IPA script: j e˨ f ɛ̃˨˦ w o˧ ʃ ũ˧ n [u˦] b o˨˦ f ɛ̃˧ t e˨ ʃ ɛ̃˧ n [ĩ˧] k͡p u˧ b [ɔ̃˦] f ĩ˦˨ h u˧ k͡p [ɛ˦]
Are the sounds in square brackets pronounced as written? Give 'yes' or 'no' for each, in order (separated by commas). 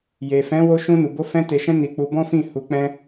no, no, yes, no